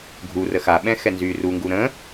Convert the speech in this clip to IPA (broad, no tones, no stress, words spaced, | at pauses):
ɡʱu rəxaɓɛ̃ xɛnzyːruŋɡu ɾə̃ː